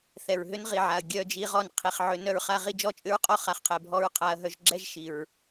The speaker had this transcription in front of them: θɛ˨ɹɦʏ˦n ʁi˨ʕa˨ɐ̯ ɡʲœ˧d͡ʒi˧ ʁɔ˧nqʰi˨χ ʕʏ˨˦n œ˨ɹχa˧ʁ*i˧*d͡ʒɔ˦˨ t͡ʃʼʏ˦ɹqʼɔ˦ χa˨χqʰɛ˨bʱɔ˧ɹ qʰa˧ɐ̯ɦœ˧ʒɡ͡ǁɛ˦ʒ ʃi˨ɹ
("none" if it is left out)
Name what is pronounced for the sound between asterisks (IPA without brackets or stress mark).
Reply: i˧